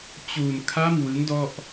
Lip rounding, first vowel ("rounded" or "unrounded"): rounded